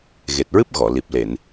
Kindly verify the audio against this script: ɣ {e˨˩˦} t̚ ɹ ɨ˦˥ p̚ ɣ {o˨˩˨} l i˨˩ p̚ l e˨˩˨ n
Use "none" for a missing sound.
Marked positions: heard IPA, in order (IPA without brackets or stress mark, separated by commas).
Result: e˨˩, ɔ˨˩˨